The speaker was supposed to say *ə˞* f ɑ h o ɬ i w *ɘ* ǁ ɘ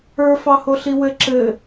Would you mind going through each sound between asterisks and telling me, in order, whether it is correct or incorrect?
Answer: correct, correct

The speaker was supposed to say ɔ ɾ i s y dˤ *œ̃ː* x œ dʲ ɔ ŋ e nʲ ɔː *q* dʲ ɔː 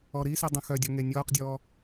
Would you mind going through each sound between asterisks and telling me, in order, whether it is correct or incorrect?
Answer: incorrect, correct

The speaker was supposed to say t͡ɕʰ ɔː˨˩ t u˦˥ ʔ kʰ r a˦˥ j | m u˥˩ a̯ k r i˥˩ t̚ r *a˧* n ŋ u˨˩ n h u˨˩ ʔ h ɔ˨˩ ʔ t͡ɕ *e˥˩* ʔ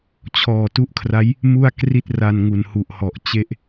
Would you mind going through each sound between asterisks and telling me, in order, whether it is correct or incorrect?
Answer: correct, correct

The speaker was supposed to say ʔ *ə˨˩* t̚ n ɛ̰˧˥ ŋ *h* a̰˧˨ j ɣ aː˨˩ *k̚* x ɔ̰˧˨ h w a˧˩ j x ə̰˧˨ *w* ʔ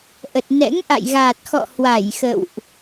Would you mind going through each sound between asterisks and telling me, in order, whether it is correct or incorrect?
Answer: correct, incorrect, incorrect, correct

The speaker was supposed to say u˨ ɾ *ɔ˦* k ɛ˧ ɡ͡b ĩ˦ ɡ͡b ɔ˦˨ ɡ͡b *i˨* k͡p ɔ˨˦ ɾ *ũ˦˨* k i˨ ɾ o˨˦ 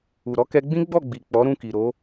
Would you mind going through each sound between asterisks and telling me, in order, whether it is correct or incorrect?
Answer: incorrect, correct, correct

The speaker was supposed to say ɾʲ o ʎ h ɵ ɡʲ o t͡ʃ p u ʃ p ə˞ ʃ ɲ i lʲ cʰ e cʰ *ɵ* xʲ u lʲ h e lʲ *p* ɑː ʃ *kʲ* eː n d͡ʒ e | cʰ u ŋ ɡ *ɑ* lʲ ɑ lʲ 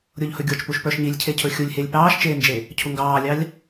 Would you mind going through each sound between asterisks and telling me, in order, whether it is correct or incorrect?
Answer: correct, correct, incorrect, incorrect

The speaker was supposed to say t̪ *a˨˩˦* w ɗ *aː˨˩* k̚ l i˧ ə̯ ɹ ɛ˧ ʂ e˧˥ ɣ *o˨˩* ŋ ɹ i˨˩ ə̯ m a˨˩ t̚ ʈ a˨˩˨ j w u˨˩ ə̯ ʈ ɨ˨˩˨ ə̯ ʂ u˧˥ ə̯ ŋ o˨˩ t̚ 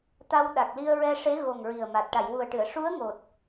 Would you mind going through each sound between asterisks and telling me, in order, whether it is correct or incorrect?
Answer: incorrect, incorrect, correct

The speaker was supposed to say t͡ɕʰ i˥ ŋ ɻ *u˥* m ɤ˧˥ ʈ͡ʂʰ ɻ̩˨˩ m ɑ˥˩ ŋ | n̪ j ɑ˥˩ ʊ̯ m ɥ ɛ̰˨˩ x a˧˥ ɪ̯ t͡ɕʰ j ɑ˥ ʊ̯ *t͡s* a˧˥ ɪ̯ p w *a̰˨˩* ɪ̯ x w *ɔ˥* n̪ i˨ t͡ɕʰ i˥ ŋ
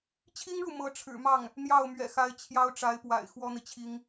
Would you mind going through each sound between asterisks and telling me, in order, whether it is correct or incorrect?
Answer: incorrect, incorrect, correct, correct

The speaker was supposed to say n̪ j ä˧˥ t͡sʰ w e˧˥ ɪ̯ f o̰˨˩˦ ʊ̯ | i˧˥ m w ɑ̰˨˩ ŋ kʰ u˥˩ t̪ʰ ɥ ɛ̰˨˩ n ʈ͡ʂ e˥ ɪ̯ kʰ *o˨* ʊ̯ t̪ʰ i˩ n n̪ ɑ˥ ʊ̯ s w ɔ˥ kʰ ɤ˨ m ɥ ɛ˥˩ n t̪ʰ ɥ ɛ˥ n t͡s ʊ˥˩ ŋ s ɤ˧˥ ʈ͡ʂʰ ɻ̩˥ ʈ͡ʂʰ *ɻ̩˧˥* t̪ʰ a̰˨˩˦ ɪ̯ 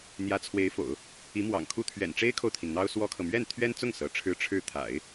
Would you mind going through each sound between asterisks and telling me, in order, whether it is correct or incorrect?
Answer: correct, incorrect

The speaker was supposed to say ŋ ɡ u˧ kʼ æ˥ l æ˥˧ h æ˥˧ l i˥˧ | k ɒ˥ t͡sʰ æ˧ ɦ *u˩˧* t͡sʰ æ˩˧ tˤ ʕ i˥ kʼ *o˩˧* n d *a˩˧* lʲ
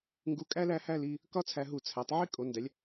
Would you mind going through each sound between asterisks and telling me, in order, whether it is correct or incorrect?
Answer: incorrect, correct, incorrect

